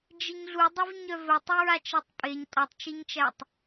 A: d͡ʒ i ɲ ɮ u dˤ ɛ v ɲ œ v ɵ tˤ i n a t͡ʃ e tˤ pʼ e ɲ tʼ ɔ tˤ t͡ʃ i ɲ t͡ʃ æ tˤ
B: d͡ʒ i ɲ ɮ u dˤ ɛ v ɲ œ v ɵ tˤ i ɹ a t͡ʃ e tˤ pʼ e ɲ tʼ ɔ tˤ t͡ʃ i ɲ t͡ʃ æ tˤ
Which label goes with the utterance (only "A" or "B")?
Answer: B